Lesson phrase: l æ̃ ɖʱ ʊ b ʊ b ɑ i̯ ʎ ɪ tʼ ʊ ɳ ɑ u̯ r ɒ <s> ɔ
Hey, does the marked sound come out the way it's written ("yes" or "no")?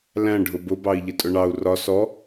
yes